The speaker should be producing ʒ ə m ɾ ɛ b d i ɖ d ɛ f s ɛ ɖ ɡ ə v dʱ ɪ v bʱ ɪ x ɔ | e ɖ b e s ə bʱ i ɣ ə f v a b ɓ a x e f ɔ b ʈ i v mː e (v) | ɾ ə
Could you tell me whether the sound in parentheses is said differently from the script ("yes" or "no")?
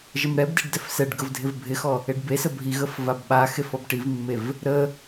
no